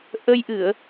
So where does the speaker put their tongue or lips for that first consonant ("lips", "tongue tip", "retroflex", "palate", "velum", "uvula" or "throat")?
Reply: throat